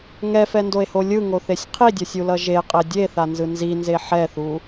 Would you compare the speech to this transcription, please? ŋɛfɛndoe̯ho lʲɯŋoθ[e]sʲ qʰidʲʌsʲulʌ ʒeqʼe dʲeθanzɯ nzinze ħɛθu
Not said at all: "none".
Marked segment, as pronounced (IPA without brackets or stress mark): e